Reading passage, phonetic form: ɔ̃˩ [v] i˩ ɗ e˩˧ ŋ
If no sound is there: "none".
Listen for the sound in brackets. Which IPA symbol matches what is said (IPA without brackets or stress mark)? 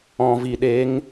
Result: v